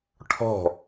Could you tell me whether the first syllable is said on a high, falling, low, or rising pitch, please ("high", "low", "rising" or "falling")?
falling